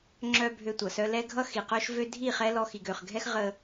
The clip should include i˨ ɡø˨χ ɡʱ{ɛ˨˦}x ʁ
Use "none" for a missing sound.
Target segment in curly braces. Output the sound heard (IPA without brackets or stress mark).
ɛ˦